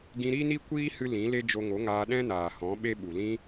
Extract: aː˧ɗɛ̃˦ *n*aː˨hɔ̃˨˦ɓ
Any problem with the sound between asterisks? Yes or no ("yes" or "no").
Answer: no